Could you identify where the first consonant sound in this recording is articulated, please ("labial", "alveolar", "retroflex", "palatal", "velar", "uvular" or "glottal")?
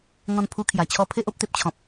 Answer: velar